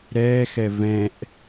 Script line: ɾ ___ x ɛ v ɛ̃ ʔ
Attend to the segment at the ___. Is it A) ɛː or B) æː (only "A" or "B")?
A